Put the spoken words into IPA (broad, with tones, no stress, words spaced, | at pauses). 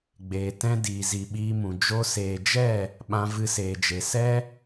ɡ͡beː˨tɛ̃˦ diː˨zi˨ɓiː˧mũ˨ d͡ʒo˧seː˨d͡ʒɛ˦˨ | ɓã˧vɨ˧seː˨d͡ʒe˨ sɛ˦